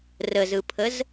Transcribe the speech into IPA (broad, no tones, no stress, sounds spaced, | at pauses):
r ə z ɯ pʰ ə z